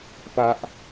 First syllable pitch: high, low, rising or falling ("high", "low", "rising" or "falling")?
high